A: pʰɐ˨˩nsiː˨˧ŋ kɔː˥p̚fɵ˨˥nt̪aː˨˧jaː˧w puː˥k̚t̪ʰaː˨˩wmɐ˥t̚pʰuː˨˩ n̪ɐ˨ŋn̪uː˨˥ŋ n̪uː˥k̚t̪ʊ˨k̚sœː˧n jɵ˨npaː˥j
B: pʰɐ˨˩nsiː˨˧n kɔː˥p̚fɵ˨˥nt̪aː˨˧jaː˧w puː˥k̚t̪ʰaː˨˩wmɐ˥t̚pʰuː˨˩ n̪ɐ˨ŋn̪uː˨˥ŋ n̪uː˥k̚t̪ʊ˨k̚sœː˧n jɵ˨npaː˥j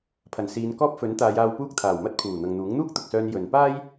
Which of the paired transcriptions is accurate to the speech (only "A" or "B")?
B